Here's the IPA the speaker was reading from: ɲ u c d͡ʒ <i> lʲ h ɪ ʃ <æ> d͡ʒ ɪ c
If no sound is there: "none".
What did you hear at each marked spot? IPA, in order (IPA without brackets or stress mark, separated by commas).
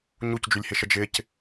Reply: y, ə